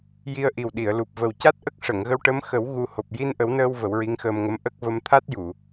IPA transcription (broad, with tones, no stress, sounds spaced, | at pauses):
j i˧ ə̯ ʔ i˨˩ w ɗ i˨˩˨ ə̯ l u˨˩ p̚ v ə˨˩ w c a˦˥ t̚ ʔ ə˦˥ k̚ ʂ ə˨˩˨ ŋ ɣ ə˧ w ʈ ə˧˥ m x ə˨˩˦ w ɣ u˧ h o˨˩ p̚ j i˧ n ʔ ə˨˩˦ w n əː˧ w v ə˨˩˦ w ɹ i˧˥ ŋ x əː˧ m ŋ ə˧˥ m ʔ ə˦˥ k̚ v ə˧ m t̪ʰ a˦˥ t̚ j u˨˩˨